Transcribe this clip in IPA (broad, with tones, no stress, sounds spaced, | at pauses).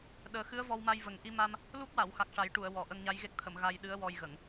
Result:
ɗ əː˨˩˦ x ɨ˧˥ ə̯ v ɔ˧ w m a˧ j v ə˨˩ ŋ ʔ i˧ m a˧ m | l u˦˥ k̚ w a˨˩˨ w x a˨˩ k̚ ʂ a˨˩˦ j ʈ u˨˩˨ ə̯ w ɔ˨˩ ʔ ə˧ ŋ ɲ a˧˥ j ɣ e˦˥ k̚ t̪ʰ ə˨˩˨ m ɣ a˧ j ɗ ɨ˧˥ ə̯ w ɔ˧ j ɣ ə˨˩˨ ŋ